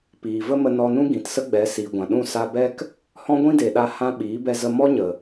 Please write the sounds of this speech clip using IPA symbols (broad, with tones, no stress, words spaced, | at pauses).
piː˨və˦ mə˧nɔ˧nũ˦ ɡĩ˨tsə˦ɡ͡bɛ˨˦ si˨ ɡʷã˨ɗũ˦˨ sa˧bɛ˦k | hɔ̃˦ɡʷĩ˦de˨ɗa˧ hã˦ ɓiː˨˦bɛ˧zə˧ mɔ˦ɲə˨